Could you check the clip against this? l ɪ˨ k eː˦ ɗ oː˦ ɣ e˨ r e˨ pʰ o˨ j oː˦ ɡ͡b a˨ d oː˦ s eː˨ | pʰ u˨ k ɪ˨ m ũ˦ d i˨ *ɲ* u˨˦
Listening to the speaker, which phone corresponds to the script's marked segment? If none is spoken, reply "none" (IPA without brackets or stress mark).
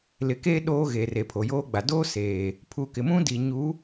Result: ɲ